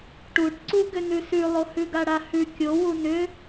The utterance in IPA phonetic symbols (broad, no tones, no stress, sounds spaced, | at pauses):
ʈ u ʈ ǀ u ɡ ʏ n ʉ s ʉ lˠ o h ʉ ɡ a ɽ a h ʉ kʲ o w u n ʏ